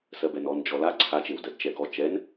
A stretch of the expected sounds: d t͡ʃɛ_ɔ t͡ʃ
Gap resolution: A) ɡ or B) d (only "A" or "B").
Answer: A